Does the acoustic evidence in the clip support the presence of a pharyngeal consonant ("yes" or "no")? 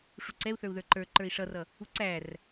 no